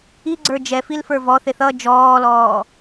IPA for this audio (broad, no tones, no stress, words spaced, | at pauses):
iɡ͡ǀə˞ d͡ʒɛfilfə˞ vɔθeθ ʌ d͡ʒɔːlɔː